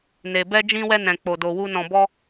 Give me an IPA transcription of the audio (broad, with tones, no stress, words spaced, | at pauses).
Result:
ne˧ bɛ˦d͡ʒĩ˦wɛ˦ nɛ̃˧k͡po˧ do˧wu˦ nɔ̃˧bɔ˦